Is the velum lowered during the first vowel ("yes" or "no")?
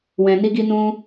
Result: yes